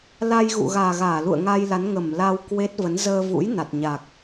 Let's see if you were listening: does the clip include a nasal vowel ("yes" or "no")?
no